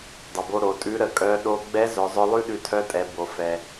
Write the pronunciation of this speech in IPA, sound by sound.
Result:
dˤ ə˩ b o˧ ɾ o˩˧ tʼ ʉ˧˥ ɾ ə˩ kʼ œ˧˥ ɗ o˧ ɡ͡b ɛ˧˥ z œ˩˧ zˤ œ˧ lˠ ʉ˥ ɗ ʉ˧ tʰ œ˧˥ tʼ ɛ˩˧ b o˩ f ɛ˩

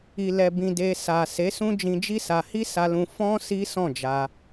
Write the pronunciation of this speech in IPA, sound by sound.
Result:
i˨ l ɛ˨ b ĩ˨ d e˧ s a˨ s e˨˦ s ũ˦ d͡ʒ ĩ˧ d͡ʒ i˦ s a˧ h i˦ s a˧ l ũ˧ f ɔ̃˦ s i˦ s ɔ̃˦˨ d͡ʒ a˧

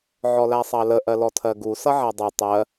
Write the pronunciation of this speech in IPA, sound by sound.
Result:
ʕ ɔ l æ sˤ ɑ l ə ʔ ɜ l ɔ tʰ ɜ ɡ u s ʌ ʕ æ dˤ i tˤ ɜ

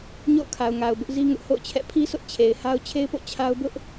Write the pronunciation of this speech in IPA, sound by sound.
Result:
ɲ o̰˦˨ ʊ̯ kʰ a˨ ʊ̯ ŋ a˨ ʊ̯ b ʊ˦ ʔ z i˦ ŋ ʊ˦ ʔ h o̰˦˨ ʊ̯ t͡ɕʰ ɛ̰˦˨ pʰ i˦ sʰ ʊ˦ ʔ t͡ɕʰ e˨ ɪ̯ h a˦ ʊ̯ t͡ɕʰ e˦ ɪ̯ p o̰˦˨ t͡ɕʰ a˦ ʊ̯ b ʊ˦ ʔ

